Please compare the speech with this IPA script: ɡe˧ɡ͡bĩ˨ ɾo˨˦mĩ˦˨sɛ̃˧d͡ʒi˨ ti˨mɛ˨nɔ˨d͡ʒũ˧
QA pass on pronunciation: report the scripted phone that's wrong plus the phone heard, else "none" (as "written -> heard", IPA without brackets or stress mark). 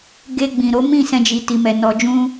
none